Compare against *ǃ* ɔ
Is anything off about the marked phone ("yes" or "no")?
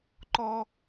no